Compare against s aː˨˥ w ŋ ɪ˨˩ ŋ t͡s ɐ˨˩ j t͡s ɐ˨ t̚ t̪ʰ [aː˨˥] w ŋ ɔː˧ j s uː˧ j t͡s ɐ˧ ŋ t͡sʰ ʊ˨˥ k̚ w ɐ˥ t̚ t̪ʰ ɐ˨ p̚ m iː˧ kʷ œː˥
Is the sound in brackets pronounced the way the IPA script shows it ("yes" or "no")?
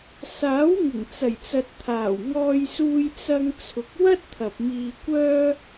no